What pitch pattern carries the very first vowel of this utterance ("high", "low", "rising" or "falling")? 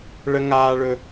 high